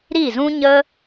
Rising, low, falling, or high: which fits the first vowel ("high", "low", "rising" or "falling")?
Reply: falling